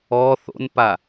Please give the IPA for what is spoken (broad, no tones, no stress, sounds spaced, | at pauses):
ɔ θ o̰ n p a